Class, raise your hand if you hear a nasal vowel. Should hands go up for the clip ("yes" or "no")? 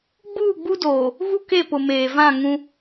yes